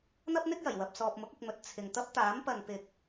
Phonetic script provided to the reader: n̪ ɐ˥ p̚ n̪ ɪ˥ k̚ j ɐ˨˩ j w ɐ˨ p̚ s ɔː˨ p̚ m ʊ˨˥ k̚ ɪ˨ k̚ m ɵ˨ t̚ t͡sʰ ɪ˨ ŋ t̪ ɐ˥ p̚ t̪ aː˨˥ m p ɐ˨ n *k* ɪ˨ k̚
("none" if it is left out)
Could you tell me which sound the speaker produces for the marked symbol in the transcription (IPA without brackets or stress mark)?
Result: p